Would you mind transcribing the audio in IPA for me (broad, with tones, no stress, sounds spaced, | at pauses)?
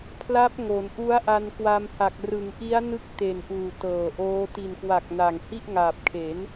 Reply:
pʰ l a˦˥ p̚ ŋ o˩˦ n ʔ u˦˥ a̯ ʔ a˧ n k w a˧ m h a˨˩ k̚ r ɯ˩˦ ŋ ʔ i˦˥ a̯ n ɯ˦˥ k̚ t e˨˩ n ʔ uː˨˩ t ɤː˨˩ ʔ oː˦˥ t i˨˩ n k w a˨˩ k̚ n a˨˩ ŋ h i˥˩ ʔ ŋ aː˨˩ p̚ kʰ e˩˦ n